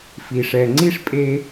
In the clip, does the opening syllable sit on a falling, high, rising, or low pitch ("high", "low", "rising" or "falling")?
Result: low